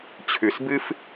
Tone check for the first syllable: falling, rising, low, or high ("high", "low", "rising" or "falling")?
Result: low